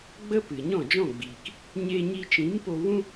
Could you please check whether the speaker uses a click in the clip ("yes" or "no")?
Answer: no